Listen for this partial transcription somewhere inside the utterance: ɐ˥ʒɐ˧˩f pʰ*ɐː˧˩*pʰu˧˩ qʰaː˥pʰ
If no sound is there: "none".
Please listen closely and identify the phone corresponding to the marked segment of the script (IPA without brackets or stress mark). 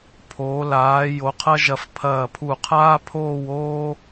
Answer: ɐː˧˩